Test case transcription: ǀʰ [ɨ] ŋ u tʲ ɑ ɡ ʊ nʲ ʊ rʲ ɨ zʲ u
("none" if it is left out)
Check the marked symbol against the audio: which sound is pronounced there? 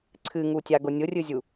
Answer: ɨ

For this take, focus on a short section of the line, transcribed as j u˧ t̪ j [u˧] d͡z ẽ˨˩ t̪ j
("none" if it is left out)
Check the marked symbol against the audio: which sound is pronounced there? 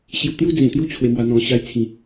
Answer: u˦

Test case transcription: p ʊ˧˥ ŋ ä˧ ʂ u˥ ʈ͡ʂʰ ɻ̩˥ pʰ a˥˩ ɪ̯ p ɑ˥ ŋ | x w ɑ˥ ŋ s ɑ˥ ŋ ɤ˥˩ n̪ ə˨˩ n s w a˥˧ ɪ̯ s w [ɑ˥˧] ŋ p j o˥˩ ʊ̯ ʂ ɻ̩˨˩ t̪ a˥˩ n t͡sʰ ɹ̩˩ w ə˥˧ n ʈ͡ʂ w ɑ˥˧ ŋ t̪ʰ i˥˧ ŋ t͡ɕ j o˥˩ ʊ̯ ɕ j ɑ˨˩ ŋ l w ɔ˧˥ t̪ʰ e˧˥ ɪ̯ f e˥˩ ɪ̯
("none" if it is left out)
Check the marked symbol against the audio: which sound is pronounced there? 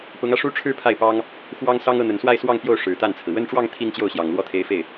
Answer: ɑ˥˧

